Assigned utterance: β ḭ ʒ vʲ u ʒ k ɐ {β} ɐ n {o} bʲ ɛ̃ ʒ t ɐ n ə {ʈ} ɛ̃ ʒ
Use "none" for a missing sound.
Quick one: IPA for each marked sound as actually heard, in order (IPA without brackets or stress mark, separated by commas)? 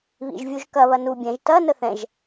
β, u, θ